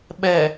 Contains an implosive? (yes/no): yes